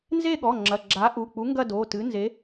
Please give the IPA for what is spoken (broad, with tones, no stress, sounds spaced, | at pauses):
n z e˥˧ ɠ ɔ˩˧˩ ŋ͡ǁ ɐ˩˧˩ ɡ͡ǁ a˨˥ ʔ u˩˧˩ k͡p u˨˥ ŋ ɡ ɐ˥˧ d o˩˧˩ t ɨ˨˥ n z e˨˥